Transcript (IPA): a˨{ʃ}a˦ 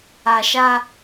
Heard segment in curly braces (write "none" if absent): ʃ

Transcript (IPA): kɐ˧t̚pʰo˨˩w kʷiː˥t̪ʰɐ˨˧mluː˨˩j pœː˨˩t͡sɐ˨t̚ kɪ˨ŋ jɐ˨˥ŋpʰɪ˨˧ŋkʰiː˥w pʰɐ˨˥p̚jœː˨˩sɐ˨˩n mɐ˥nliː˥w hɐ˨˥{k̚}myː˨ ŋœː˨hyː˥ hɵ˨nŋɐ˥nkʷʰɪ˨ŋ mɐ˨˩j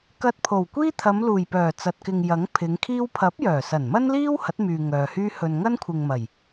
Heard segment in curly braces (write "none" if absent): t̚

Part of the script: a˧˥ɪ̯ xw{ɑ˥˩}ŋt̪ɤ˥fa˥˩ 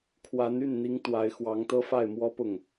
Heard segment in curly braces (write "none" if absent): ɑ˧˥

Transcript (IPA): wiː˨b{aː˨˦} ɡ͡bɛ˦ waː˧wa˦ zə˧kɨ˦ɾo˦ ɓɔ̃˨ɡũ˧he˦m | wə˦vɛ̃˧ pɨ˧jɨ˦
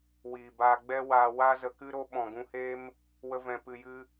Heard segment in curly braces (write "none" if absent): aː˧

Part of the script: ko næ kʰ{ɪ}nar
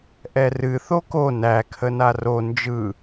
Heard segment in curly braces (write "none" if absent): ə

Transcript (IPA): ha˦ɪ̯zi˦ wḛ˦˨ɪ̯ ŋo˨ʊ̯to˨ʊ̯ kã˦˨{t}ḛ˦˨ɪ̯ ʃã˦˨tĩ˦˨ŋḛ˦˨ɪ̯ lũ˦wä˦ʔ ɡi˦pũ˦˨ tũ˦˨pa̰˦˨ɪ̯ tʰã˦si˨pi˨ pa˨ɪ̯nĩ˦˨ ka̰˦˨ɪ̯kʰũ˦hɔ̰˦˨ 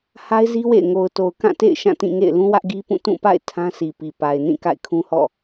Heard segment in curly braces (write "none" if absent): t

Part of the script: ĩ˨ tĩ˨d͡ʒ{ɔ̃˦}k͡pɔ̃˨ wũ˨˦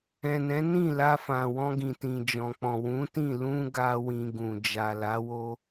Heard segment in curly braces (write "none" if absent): ɔ̃˨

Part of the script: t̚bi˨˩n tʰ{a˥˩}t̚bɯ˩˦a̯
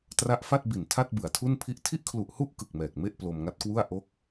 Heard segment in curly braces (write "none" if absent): a˥˩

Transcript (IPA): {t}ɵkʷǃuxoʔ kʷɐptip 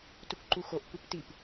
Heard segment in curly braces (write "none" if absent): t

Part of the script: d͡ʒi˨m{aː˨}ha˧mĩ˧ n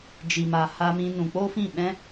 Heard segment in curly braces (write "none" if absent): a˨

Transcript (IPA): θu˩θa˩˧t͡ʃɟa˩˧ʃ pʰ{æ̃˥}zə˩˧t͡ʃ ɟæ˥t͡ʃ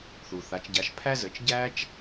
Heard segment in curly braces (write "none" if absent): æ˥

